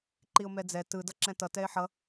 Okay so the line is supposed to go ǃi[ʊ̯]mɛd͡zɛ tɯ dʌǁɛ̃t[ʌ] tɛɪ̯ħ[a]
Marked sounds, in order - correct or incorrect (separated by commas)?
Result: correct, correct, incorrect